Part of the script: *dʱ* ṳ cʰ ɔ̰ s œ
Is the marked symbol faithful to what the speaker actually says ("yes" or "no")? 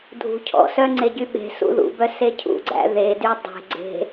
yes